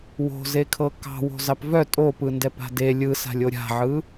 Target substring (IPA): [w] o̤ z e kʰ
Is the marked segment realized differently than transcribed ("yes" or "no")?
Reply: no